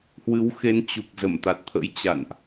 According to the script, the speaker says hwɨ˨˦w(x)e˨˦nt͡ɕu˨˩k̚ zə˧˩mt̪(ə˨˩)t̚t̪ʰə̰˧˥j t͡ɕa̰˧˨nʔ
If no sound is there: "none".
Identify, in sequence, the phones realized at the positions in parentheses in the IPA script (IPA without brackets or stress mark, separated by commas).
x, a˨˩